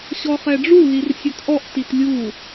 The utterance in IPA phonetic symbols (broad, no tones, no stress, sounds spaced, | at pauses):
ɕ ɔ χ ɛ ɖ͡ʐ u l i r sʲ ɵ t ʔ ɔ ʔ t i t lʲ u